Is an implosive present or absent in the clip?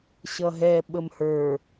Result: present